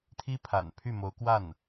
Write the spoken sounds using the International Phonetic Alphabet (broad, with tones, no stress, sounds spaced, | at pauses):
t̪ʰ i˥ pʰ a̰˨˩ n pʰ y˥˩ m o˧˥ ʊ̯ k w a˥˩ n